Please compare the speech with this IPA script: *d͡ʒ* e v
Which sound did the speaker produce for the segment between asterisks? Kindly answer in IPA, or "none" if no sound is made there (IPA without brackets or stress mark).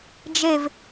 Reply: d͡ʒ